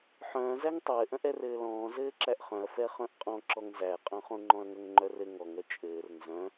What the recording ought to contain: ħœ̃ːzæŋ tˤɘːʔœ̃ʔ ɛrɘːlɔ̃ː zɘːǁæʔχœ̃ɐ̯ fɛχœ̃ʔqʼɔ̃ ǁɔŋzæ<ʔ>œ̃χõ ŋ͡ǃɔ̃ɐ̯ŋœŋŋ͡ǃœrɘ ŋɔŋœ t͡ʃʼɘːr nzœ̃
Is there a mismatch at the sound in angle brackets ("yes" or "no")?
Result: yes